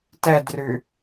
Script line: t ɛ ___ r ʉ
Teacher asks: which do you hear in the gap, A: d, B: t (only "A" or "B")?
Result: A